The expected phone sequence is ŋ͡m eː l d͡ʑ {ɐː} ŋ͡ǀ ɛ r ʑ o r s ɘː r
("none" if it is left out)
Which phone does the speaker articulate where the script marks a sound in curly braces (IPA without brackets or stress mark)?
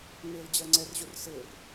ɐː